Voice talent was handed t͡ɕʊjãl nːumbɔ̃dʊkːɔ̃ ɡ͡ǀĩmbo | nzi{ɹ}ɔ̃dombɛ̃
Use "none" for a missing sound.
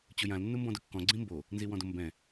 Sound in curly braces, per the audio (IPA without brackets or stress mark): w